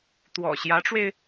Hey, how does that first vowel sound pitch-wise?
low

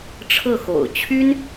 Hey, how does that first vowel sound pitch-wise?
falling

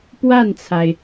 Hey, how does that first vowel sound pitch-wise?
falling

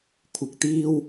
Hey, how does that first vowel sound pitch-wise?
rising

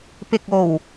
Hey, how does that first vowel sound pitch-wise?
low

